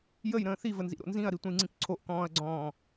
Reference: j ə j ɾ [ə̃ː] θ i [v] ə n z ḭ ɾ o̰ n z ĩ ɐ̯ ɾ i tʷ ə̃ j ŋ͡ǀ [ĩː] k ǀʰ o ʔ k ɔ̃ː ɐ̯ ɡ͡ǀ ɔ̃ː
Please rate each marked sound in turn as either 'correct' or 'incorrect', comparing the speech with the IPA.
correct, correct, incorrect

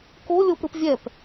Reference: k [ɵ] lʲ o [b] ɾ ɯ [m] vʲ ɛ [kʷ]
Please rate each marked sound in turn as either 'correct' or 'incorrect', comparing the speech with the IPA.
incorrect, incorrect, incorrect, incorrect

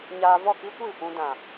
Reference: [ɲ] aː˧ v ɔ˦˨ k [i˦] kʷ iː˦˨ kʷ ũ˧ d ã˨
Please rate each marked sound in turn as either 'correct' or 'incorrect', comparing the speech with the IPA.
correct, correct

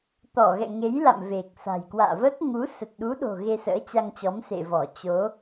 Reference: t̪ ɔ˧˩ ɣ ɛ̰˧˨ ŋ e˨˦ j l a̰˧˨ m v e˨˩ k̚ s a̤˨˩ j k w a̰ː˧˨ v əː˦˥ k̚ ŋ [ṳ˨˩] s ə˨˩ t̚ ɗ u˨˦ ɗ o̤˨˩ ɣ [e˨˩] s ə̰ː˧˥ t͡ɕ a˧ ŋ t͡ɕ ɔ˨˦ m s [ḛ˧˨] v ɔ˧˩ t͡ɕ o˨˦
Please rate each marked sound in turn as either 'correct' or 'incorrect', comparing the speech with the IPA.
incorrect, incorrect, correct

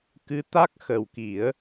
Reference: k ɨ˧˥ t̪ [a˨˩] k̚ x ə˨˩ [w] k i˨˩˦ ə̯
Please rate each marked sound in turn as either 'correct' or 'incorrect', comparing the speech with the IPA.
incorrect, correct

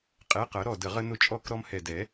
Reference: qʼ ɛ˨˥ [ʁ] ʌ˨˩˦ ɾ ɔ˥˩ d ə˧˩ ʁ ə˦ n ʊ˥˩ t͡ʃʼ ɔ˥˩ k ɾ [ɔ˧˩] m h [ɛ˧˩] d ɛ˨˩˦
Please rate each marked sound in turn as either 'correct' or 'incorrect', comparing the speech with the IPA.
incorrect, incorrect, correct

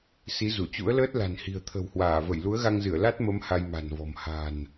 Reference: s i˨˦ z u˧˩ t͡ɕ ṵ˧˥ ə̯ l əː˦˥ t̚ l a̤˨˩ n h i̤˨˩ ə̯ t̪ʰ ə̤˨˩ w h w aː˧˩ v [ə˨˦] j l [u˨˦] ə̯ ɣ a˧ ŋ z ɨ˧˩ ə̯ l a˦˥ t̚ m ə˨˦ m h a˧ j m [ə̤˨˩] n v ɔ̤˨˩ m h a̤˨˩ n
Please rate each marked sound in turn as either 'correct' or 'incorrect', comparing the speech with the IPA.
incorrect, correct, incorrect

